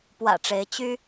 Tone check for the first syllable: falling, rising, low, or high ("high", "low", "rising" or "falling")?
low